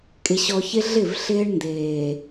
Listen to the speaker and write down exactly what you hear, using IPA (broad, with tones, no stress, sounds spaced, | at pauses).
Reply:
kʼ ɪ˨ ɕ ɔ˨ ç ɪ˦ ɮ ɪ˦˨ v ɬ ɪː˦ ɳ n d eː˨